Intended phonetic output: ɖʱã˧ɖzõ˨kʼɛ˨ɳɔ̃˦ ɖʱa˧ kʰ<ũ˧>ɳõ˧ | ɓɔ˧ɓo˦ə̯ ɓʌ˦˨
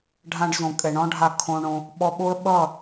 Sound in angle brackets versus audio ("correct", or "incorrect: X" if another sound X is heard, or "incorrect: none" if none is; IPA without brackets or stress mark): incorrect: õ˧